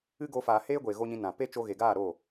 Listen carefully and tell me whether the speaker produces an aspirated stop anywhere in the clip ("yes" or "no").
no